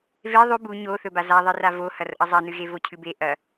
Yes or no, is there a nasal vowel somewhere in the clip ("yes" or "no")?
no